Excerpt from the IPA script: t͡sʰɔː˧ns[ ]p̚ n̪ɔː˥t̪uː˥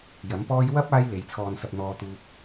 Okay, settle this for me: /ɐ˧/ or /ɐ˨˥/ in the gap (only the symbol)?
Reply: ɐ˧